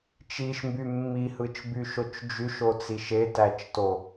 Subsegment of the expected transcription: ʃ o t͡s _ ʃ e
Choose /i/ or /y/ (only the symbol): i